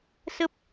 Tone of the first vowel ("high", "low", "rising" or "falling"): high